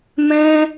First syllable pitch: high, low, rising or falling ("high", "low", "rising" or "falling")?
high